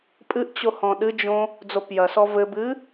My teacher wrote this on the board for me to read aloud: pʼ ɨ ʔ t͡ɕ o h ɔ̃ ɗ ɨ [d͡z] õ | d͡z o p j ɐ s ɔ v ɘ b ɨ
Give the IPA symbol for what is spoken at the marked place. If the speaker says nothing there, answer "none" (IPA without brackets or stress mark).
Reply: d͡ʒ